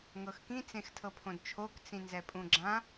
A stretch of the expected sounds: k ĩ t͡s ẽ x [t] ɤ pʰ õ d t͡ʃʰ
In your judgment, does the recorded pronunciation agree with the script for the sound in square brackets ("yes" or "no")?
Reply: no